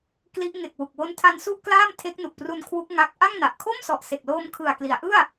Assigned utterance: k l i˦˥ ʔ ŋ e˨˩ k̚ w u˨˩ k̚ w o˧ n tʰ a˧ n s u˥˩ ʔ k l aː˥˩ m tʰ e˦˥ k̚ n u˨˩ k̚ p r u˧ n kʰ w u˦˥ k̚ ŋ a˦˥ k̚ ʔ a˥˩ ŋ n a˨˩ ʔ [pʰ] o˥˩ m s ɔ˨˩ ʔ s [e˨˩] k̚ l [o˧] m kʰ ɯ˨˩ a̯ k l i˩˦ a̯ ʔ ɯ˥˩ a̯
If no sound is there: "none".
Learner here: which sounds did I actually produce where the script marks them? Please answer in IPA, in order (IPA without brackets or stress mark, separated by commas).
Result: kʰ, e˨˩, oː˧